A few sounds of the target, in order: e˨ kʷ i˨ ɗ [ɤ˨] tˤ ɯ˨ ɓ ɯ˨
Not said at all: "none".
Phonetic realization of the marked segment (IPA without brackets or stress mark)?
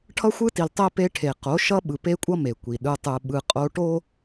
ɯ˨